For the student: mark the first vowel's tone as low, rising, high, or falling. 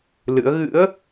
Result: rising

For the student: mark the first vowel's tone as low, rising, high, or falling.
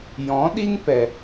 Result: rising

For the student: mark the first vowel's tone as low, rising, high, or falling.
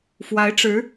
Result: rising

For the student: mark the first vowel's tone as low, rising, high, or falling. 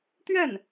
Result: falling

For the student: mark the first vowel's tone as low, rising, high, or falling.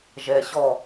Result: low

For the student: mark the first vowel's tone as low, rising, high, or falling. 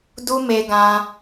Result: high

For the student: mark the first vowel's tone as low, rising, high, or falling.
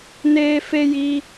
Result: high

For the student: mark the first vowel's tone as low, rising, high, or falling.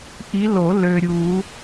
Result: rising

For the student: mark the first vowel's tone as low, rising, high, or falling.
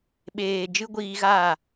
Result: low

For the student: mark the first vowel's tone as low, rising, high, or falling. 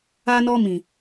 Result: high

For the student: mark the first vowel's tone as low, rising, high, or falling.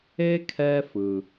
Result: high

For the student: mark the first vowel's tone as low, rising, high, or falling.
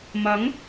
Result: rising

